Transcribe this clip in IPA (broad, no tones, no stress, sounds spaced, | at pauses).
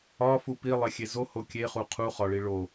ɒ f u p i lˠ e xʲ e z o h o kʲ e χ u qʰ u χ ɒ ɭ i ɭ o